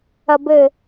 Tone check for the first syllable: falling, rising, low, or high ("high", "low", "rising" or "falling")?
high